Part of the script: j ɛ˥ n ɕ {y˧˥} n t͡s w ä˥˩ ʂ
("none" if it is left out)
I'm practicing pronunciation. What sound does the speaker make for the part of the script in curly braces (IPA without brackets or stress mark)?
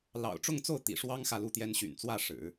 y̰˨˩